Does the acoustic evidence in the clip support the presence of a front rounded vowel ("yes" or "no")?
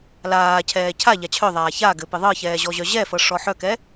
yes